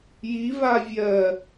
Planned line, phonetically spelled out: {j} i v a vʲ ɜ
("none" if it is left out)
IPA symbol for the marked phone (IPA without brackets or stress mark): j